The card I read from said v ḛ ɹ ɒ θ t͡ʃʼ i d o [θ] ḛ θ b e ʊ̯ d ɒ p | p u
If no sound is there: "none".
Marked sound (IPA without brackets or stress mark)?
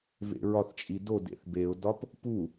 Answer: d